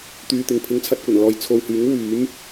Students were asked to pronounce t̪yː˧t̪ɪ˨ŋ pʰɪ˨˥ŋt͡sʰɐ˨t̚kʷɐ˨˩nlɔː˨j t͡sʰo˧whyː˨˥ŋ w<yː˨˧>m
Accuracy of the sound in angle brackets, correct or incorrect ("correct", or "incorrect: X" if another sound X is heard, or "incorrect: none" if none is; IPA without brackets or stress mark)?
incorrect: yː˨˥